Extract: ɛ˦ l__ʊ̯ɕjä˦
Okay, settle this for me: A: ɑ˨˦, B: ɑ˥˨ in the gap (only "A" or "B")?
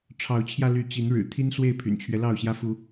B